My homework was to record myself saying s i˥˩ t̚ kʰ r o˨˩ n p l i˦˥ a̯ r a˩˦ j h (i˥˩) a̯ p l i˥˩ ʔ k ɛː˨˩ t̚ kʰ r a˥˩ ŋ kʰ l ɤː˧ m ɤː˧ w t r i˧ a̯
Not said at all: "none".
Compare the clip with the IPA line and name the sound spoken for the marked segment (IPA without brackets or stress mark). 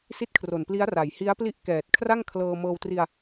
i˦˥